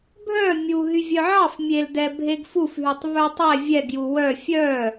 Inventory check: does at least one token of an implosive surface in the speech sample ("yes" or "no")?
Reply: no